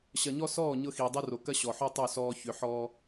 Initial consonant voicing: voiceless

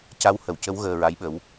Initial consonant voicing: voiceless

